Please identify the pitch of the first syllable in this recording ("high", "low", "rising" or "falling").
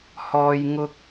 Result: high